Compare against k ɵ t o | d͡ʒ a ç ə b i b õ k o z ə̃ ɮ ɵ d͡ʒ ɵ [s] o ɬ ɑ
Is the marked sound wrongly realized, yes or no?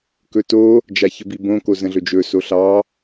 no